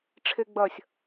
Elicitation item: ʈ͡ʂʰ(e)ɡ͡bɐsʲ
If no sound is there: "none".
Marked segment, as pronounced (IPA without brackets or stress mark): e